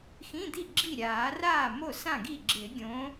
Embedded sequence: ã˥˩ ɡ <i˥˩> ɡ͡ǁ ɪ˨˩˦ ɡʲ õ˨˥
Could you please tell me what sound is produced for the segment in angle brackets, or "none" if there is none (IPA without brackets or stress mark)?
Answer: i˥˩